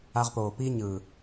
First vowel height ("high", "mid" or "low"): low